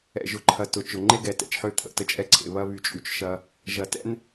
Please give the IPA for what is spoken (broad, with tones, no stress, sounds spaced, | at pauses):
ɛ̰˨ ʒ ʊ˨ ǃʰ ɐ˨ t ʊ˨ t͡ʃ ʊ˨ ŋ͡ǃ e˦ ɡ ɛ˨ t ɛ̰˨ t͡ʃ ħ ø˦˨ t̪ʰ ə̰˦˨ t ə˦ t͡ʃʼ ɛ˦ ǀʰ ḛ˨ β ɐ˦ β y˨ t͡ʃʼ y˨ t͡ʃ ʃ ɐ˦ | ʒ ɐ˨ t ɛ̰˦ n